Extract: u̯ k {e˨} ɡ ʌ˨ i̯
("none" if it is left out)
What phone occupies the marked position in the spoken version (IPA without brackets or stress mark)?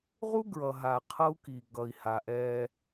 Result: i˨